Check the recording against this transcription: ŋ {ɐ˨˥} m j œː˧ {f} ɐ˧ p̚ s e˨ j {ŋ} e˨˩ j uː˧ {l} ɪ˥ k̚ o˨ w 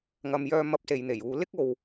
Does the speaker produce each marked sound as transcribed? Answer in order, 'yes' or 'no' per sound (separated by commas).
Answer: no, no, no, yes